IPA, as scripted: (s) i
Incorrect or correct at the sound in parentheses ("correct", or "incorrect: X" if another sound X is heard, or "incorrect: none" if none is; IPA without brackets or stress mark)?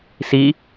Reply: correct